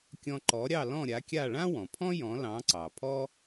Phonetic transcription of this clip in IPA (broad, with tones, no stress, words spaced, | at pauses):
kʲɔ̃˧ ǃɔ˩˥ ɾʲɑ˥˩lɔ̃˥˩ɾʲa˩˥kʲa˥˩ ɭã˥wɔ̃˩pʰɔ̃˥ jɔ̃˩˥lɑ̃˩˥ǀɑ˩pʰɔ˥